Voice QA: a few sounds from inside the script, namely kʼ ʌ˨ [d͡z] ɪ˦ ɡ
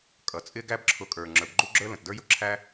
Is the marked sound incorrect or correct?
incorrect